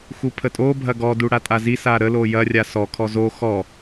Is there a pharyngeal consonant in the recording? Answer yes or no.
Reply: no